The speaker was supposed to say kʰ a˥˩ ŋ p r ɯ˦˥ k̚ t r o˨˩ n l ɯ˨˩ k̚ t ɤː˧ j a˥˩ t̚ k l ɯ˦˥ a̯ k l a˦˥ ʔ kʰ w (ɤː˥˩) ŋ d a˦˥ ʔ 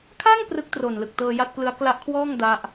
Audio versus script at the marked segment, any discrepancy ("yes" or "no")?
yes